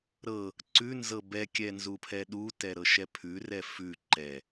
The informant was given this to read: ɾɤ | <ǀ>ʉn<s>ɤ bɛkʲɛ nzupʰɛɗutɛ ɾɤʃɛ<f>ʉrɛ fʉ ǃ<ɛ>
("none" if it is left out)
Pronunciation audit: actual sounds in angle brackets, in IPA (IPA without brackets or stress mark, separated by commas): ǀ, z, pʰ, ɛ